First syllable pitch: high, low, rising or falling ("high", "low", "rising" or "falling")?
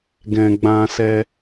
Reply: low